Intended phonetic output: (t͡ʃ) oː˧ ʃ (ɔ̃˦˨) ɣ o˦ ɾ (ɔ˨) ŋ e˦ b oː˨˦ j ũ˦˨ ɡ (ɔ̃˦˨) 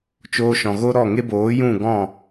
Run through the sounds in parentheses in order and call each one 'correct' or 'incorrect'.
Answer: correct, incorrect: ɔ̃˨, incorrect: ɔ˦˨, correct

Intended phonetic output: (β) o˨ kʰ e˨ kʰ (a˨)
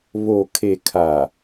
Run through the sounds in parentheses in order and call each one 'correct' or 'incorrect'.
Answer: correct, correct

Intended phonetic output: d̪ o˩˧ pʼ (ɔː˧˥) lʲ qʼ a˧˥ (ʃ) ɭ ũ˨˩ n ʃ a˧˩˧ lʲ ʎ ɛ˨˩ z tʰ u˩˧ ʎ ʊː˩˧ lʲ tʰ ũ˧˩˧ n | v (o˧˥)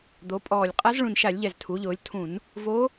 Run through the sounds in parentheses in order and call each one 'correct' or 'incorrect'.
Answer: incorrect: ɔː˨˩, incorrect: z, correct

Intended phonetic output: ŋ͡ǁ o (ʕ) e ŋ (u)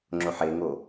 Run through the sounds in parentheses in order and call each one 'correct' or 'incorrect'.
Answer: incorrect: ħ, incorrect: o

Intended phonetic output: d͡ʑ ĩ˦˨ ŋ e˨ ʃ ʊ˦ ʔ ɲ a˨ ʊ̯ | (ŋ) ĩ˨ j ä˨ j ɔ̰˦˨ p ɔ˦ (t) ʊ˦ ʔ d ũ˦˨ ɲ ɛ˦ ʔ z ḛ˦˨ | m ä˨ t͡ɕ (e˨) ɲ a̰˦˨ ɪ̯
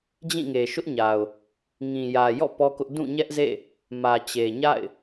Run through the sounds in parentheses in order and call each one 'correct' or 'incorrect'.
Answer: correct, incorrect: k, correct

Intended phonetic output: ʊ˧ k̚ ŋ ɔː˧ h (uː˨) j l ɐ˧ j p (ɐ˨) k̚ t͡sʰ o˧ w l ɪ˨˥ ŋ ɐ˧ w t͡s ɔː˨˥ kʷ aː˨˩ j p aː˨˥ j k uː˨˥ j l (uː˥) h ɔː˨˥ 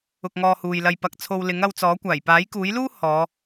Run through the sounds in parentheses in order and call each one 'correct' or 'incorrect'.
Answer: correct, correct, correct

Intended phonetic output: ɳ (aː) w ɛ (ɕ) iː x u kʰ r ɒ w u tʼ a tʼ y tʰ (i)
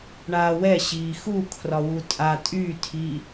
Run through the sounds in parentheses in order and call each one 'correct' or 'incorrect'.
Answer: correct, correct, incorrect: iː

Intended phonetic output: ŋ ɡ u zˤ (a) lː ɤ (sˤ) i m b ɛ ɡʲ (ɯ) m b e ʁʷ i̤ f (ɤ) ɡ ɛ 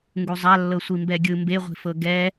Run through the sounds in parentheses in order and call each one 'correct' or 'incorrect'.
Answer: correct, incorrect: sʷ, correct, correct

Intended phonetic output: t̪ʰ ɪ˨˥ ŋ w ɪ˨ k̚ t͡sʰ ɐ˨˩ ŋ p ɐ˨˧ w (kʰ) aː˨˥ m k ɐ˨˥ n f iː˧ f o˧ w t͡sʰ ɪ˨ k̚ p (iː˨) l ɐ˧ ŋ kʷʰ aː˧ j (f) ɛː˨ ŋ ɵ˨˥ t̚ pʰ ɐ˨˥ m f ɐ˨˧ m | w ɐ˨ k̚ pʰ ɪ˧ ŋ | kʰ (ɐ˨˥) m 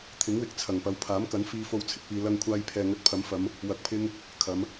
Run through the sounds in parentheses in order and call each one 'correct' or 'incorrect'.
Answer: incorrect: pʰ, correct, incorrect: pʰ, incorrect: ɐ˨˧

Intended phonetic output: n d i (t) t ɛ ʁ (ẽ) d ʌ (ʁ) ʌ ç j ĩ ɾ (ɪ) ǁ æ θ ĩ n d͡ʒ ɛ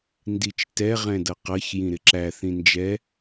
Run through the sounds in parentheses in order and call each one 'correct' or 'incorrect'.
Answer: incorrect: t͡ʃ, incorrect: ɛ̃, incorrect: q, correct

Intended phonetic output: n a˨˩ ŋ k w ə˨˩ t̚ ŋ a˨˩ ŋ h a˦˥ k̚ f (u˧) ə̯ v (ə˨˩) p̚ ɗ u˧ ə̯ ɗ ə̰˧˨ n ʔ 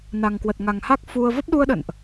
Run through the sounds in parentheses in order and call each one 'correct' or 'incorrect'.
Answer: correct, incorrect: ə˦˥

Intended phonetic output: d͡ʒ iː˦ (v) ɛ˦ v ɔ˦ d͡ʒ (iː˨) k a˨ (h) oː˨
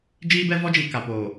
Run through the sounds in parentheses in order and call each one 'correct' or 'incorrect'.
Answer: incorrect: b, correct, incorrect: p

